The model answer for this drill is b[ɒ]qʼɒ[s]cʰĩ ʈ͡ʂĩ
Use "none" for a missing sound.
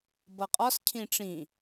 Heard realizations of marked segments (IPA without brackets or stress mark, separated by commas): ʌ, s